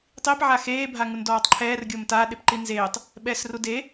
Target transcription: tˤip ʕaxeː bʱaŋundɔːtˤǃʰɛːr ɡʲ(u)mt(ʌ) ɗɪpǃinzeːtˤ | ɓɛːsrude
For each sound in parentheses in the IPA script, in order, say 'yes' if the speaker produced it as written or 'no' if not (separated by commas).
no, no